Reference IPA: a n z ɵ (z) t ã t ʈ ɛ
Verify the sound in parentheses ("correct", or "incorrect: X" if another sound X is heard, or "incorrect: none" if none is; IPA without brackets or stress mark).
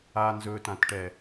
incorrect: none